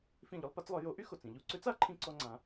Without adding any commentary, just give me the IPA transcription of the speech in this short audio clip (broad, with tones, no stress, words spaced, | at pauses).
fĩ˥˩ʎʊ˥lˠpa˥t͡slˠœ˩˥ jo˩˥ʔy˥ xo˩t͡sĩ˧ʎu˥˩ ǀø˥t͡sa˩˥ǃʰĩ˧ǀɔ˧ ŋ͡ǀã˩˥